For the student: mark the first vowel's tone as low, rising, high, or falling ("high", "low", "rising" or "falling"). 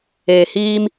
low